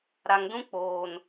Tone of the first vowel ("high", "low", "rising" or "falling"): low